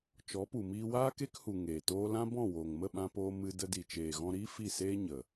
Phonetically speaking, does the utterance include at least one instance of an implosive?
yes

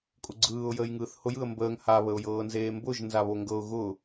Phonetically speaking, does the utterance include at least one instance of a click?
yes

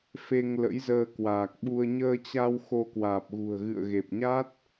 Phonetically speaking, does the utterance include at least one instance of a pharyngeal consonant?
no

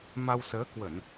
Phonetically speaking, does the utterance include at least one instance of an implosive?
no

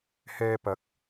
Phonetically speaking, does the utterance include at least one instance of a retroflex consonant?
no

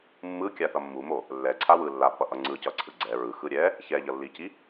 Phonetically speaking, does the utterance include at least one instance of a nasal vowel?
no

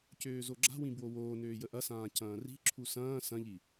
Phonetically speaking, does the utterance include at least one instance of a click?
yes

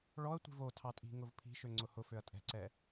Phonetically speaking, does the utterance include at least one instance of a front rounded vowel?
yes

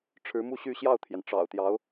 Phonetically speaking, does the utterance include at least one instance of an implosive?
no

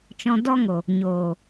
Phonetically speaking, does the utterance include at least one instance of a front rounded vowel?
no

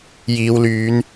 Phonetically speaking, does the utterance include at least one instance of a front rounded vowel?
yes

